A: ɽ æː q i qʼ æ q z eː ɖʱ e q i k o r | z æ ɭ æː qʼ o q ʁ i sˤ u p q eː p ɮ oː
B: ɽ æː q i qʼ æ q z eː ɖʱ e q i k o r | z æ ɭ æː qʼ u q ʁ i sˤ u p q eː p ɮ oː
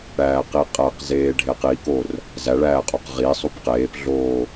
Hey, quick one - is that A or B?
A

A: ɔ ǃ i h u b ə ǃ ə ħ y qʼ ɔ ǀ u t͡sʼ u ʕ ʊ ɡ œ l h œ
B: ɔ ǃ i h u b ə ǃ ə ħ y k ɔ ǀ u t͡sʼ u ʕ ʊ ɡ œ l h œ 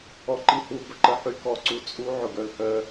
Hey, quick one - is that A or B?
B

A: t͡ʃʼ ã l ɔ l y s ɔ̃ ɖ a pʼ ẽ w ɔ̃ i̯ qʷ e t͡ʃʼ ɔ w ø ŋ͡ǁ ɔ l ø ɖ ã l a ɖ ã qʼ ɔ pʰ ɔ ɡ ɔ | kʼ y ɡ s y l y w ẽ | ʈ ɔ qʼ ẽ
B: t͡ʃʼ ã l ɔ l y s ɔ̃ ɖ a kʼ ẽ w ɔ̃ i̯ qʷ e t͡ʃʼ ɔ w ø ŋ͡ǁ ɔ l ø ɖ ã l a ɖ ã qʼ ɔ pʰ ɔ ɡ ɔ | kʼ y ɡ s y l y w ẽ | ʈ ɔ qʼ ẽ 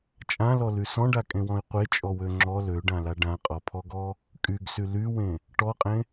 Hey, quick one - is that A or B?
B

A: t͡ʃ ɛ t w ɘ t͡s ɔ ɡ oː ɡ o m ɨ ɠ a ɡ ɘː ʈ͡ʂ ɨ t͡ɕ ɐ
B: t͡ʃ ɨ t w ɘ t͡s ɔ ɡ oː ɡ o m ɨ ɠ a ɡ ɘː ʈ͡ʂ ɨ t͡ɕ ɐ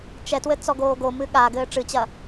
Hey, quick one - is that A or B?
A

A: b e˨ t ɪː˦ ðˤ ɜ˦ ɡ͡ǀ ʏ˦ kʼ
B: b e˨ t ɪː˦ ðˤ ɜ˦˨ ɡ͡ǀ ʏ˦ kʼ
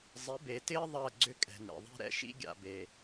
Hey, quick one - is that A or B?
B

